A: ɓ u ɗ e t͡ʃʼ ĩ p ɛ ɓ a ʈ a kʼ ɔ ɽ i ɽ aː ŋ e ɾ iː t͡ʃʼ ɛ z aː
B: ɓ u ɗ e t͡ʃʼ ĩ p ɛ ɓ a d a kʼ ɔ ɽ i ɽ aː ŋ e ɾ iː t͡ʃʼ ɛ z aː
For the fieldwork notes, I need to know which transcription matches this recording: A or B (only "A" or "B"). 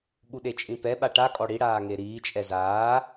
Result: A